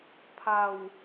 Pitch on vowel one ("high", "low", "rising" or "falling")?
low